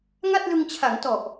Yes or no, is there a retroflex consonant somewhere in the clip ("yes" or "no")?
no